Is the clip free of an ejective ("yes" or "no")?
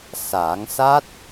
yes